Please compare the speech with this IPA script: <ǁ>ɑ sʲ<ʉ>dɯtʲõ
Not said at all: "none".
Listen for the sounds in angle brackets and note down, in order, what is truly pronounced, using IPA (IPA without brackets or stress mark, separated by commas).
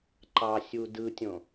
ǃ, u